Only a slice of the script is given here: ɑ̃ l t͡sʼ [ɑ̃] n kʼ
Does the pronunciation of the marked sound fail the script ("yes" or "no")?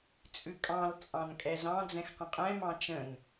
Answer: no